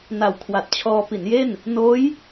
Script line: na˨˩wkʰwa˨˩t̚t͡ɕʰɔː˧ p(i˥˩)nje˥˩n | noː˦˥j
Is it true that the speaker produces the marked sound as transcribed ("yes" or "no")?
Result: no